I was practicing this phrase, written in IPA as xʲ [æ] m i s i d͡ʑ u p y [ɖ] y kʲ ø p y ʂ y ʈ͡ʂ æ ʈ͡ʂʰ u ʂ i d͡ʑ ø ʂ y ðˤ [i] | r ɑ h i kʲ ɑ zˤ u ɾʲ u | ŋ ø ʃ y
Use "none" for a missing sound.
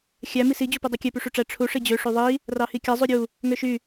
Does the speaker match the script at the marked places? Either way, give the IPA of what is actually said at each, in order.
æ, dˤ, i

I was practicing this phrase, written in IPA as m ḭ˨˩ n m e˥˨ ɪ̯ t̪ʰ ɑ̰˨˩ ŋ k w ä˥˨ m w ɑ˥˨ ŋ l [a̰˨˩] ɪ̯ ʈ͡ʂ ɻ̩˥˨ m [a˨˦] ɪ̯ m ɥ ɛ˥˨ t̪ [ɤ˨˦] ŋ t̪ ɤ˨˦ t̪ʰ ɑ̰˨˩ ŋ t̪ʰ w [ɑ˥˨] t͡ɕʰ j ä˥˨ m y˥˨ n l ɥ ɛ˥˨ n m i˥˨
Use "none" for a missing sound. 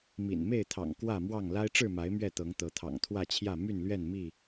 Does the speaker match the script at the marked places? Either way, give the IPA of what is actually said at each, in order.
a˦, a˨˦, ɤ˨˦, ä˥˨

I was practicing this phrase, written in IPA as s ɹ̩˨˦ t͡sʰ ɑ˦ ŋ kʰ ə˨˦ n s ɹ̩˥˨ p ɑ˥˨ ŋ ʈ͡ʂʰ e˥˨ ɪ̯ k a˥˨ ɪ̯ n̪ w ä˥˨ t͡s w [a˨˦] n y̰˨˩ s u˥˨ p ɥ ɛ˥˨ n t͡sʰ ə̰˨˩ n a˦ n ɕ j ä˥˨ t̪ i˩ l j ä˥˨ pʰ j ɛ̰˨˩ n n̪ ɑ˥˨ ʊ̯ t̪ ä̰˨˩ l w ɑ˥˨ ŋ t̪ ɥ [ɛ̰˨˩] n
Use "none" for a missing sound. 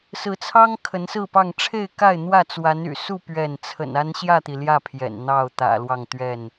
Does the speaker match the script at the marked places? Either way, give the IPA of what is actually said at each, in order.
a˨˦, ɛ˥˨

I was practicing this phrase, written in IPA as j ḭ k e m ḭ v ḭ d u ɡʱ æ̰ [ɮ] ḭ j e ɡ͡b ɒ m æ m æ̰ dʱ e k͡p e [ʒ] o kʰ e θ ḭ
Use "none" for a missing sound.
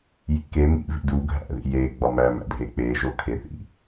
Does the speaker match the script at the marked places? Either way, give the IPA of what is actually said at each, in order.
ð, ʒ

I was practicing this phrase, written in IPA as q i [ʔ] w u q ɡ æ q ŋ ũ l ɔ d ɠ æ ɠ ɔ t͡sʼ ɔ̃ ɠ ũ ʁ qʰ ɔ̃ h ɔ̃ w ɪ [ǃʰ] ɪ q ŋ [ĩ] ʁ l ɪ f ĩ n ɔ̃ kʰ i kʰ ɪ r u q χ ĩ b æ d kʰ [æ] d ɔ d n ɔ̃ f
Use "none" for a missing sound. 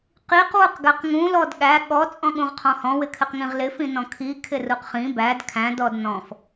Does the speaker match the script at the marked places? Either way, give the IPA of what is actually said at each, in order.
q, kʰ, ĩ, æ̃

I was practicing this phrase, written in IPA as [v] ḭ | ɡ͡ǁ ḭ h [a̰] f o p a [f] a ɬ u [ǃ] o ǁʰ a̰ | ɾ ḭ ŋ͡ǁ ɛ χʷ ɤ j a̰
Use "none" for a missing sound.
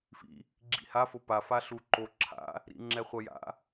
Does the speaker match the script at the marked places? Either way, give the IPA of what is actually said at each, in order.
f, a, f, ǃ

